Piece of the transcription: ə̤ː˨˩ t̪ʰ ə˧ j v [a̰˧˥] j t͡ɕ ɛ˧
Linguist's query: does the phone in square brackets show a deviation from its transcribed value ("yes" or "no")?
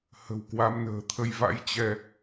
no